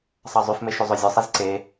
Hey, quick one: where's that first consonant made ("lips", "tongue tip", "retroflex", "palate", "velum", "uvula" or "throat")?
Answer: tongue tip